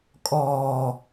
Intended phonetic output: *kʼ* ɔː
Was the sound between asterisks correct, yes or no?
yes